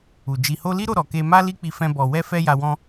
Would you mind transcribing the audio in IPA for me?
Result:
u˨ d͡ʒi˨ho˧li˦ɾo˦˨ ɾɔ˧ke˦ ma˦ li˦k͡pi˧fɛ̃˧ bɔ˨wɛ˧fɛ˧ ja˧wɔ̃˦

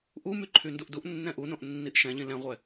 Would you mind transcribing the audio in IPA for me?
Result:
ʔumy ǃʰynduʔduʔ nːɛ̃ʔunõʔ nːiʔʃɛ̃ʎĩ lɛ̃ʁʷɛ

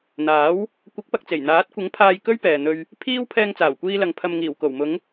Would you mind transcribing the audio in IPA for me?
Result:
n̪aː˨˥w | kʷɐ˨˥k̚pɐ˨k̚t͡se˨˩j n̪aː˨˥t̚kʷɪ˨˥ŋpʰaː˧j kɵ˥ɥpɛː˨n̪ɵ˧ɥ | pʰiː˥w pʰɛː˧ŋt͡saː˨˩wkʷiː˧lɐ˨ŋ pʰɐ˨mŋiː˨˩w ko˨˩wmʊ˨˧ŋ

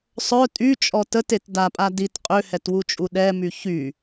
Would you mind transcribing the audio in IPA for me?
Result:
sˤœ tʼyt͡ʃʼɔ tətet dapʼa dit qʼøhɛtwut͡ʃʼu ɗɛmy çy

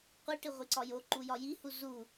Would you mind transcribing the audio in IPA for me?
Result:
qʷiʈi ʁʷiǀɒjoǃu jɒjihu zu

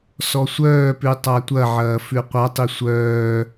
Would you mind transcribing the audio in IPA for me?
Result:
sɔsʷœːpʉ tˤatʷɐʕɐː fʉqʷatˤi sʷœː

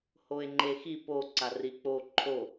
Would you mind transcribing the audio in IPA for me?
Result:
hoe̯ŋ͡ǃexi po ǀarik͡po ǃʰo

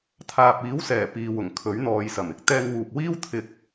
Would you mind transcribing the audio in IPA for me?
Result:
t̪ʰaː˨p̚iː˨˥wsɛː˨˩ piː˨wʊ˨˩ŋkʰɵ˨˥ɥ n̪ɔː˨jsɐ˨˩m ɪ˨k̚t̪ɛː˧ŋwuː˨p̚wiː˥w t̪ʰɪ˧k̚

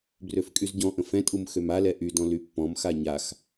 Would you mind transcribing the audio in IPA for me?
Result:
brøfkʼyzɟɔ̃ʔə̃ fɛ̃tʼum xømalɛ ʔydɔ̃ lypːɔ̃mxa ɲax

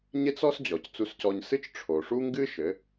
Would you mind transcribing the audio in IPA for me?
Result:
ɲe˥t͡s ɔ˥s d͡ʑɔ˩c t͡su˧scɔ˧ɲsɨ˥t͡ʃ ʈ͡ʂʰo˩ʂu˥ŋɡɨ˥ ʃɘ˩˧

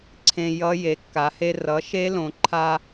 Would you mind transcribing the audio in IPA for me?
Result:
ǀʰẽ˧ jʌ˦˥ je˩˧ kːa˩˧he˧ rʌ˩˥ʃe˦˥lõ˩˧ǃʰa˧

